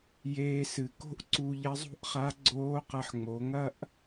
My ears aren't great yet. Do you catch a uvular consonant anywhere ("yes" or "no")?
yes